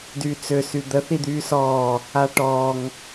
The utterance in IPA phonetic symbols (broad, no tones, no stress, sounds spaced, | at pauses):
d yː t͡s ø s y d̪ ə θ i d̪ yː s ɔː | a ʈ ɔ ŋ